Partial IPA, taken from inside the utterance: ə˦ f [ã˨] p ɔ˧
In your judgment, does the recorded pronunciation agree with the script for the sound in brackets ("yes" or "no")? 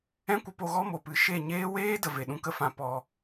no